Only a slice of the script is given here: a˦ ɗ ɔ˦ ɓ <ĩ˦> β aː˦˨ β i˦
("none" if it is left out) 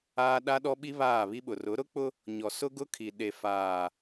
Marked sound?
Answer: i˦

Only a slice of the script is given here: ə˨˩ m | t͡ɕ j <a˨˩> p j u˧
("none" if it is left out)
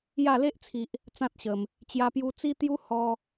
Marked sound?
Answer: a˧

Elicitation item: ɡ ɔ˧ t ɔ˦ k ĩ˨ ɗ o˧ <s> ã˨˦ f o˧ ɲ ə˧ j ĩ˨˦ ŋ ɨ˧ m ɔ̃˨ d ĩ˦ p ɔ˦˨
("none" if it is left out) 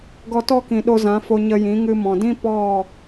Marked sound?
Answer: z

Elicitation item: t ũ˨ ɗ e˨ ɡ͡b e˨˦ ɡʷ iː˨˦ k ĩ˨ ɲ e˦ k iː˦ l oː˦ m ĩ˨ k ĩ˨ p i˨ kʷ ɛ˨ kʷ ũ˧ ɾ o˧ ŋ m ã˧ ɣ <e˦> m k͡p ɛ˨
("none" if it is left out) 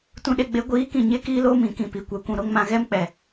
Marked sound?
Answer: ɛ˦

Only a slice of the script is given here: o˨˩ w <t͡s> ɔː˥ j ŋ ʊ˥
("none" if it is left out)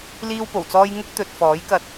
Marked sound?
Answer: t͡s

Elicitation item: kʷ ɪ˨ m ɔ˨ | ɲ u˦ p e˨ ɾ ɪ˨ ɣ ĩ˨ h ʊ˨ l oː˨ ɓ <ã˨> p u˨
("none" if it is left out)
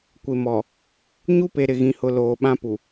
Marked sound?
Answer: ã˦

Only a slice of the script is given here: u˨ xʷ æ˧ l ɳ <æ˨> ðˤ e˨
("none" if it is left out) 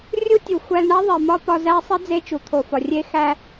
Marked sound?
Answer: æ˦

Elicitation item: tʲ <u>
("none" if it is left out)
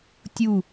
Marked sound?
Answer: u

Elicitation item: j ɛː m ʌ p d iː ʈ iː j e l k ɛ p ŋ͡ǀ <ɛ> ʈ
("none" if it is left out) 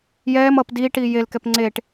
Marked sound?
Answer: e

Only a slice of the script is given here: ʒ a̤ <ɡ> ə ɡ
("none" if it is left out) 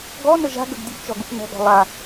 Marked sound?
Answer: ɡ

